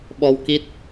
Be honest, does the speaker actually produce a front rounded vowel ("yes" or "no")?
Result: no